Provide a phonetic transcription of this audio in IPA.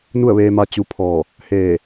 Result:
n u˥˨ ə̯ ʋ eː˧ m a˧ t͡ɕ u˧ pʰ ɔː˧˩ | h eː˧˩

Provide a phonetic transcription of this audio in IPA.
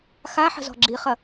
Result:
x a ħ ə̤ z ɔ̤ ɡ͡ǁ i χ ɐ

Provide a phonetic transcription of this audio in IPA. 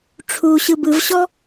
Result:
ʈ͡ʂʰ u ɕ ɯ b ɯ v ɕ ɔ

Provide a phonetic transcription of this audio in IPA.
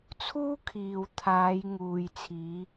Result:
t͡sʰ uː˥ kʰ iː˨ w t̪ʰ aː˨˧ j ŋ uː˨ j t͡sʰ iː˨˧

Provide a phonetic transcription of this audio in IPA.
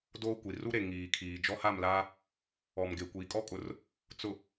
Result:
d oː˦ kʷ i˨ r u˦ ɾ e˨ ŋ iː˨ kʰ iː˨ d͡ʒ ɔ˦ h a˦˨ m l aː˦ | ɔ˨ m ɡ e˨ kʷ iː˨ kʼ ɔ˦ kʼ ʊ˨ r | t͡s ʊ˨

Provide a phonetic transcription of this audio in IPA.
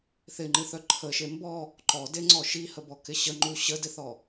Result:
θ ɪ ŋ͡ǃ ɨ θ œ ǃʰ ə ʃ e m b ɔ | ǃ ɔ d e ŋ͡ǀ ɔ ʃ i h ə b ɔ k ɪ ɕ ə ŋ͡ǃ u ɕ ə d ɪ θ ɔ

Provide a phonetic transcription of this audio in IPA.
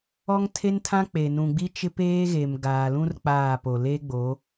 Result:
ɔ˦ ŋ tʰ e˦ n tʰ ã˦ k͡p e˨ n ũ˨ ɡ͡b i˦ t͡ʃ ɪ˦ p eː˦ ɣ e˨ m ɡ aː˨ l ũ˦ r k͡p aː˦˨ p o˨ l e˦ ɡ͡b o˨˦

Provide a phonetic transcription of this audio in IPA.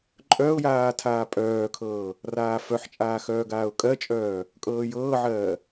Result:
ǃʼ œ ʊ̯ j aː tʰ aː pʼ œː kʰ ɤː | r aː f œ ħ t͡ʃʼ aː x œː ɡ aː ʊ̯ kʼ ɜ t͡ʃʼ œː | kʼ ɤː j ɤː ʕ ɜː

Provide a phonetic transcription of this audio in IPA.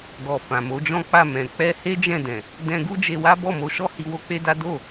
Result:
ɡ ɔ˨ f ã˨ m o˨˦ d͡ʒ ɔ̃˦ k͡p a˦˨ m ɛ̃˨ k͡p ɛ˧ h e˦ d͡ʒ ɛ̃˦˨ d ɛ̃˨ | d ɛ̃˧ ɡ u˦ d͡ʒ e˧ w a˦ b ɔ˦˨ m o˧ ʃ ɔ˦ h i˧ w o˦ k͡p e˦ d a˦ d o˦˨

